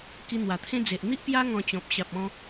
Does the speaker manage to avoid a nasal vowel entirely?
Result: no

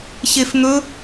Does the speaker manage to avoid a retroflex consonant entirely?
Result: yes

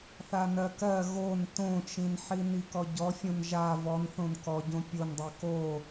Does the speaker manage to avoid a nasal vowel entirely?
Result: no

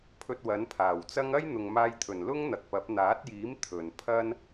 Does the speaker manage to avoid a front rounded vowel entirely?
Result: yes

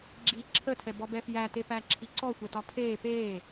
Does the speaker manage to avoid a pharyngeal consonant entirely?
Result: yes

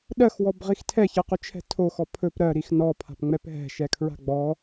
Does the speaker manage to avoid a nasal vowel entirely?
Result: yes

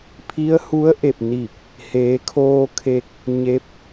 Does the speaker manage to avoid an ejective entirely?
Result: yes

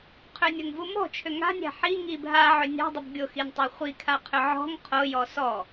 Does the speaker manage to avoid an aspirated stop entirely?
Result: no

